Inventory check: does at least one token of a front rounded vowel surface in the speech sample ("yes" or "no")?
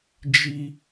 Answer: no